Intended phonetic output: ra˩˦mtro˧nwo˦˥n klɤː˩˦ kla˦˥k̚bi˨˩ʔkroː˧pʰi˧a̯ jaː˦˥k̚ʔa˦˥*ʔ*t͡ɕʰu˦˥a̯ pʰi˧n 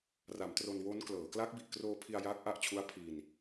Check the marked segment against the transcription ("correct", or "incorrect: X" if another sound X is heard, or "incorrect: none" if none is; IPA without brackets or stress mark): correct